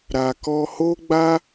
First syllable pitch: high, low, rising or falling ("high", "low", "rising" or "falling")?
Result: low